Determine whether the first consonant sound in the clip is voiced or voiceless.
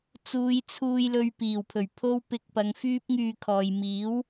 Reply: voiceless